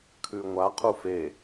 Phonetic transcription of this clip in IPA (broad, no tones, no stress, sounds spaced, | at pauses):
kʰ ʉ ŋʷ a qʰ u f e